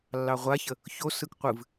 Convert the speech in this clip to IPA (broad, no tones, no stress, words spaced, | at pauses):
lːɑʁʷaçə | çosɯk qʷɨv